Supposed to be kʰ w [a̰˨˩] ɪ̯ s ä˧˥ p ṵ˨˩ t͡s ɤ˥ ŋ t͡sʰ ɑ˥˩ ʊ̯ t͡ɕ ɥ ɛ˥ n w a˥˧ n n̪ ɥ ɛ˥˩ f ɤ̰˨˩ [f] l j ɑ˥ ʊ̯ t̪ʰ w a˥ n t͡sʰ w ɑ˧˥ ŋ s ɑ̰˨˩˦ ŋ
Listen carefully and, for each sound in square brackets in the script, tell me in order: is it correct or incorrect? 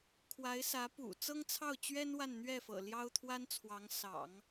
incorrect: a˧˥, incorrect: none

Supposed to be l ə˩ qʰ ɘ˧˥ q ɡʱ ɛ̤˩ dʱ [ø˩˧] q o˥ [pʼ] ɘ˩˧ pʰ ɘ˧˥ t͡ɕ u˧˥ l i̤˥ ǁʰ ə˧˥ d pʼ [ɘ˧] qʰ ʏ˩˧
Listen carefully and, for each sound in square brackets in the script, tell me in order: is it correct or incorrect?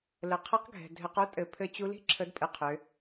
incorrect: ɘ˩˧, incorrect: tʼ, correct

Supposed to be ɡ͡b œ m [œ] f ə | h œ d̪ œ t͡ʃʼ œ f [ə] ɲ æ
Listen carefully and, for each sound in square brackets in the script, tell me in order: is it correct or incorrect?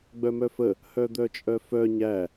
correct, incorrect: œ

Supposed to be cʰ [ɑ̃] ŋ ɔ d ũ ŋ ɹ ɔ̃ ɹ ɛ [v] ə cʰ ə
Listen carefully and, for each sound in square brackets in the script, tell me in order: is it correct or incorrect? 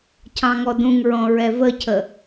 correct, correct

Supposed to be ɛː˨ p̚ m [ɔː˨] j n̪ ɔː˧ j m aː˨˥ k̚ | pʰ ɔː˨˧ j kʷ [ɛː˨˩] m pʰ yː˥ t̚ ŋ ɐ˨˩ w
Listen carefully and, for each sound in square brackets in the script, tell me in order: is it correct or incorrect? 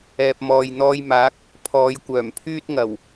correct, incorrect: œː˨˩

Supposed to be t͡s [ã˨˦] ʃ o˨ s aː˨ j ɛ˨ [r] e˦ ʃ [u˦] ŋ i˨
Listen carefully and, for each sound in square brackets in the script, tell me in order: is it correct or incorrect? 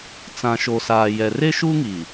incorrect: ã˨, correct, correct

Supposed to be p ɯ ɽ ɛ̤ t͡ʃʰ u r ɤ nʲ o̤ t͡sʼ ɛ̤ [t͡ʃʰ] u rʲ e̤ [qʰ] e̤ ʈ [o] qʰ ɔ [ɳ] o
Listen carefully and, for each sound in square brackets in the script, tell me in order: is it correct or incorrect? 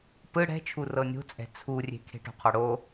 incorrect: t͡sʰ, incorrect: kʰ, incorrect: o̤, incorrect: ɽ

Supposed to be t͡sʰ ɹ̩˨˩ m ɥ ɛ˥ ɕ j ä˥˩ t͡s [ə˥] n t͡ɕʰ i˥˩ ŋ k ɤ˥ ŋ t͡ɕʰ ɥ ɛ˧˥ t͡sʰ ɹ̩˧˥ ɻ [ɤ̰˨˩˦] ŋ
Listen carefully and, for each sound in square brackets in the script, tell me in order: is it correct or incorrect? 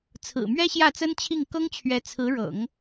correct, correct

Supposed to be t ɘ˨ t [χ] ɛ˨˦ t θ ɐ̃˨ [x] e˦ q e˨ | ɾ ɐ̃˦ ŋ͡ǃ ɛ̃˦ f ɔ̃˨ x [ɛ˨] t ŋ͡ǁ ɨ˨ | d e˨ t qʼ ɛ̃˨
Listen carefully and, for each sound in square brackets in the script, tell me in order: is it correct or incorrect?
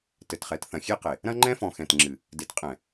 correct, incorrect: xʲ, incorrect: ɛ̃˨

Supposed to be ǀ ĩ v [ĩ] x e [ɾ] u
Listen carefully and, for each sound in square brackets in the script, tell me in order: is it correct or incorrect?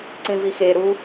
incorrect: i, correct

